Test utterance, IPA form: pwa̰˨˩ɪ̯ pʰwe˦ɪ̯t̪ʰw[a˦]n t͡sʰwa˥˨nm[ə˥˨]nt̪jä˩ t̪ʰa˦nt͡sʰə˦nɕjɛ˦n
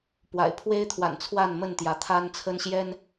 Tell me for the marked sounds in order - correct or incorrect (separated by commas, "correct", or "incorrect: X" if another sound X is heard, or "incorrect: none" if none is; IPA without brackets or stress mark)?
incorrect: a̰˨˩, correct